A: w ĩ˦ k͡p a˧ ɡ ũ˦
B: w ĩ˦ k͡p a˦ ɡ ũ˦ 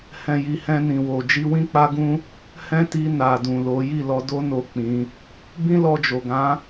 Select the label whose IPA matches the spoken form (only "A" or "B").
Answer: B